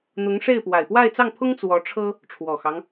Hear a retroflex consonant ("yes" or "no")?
yes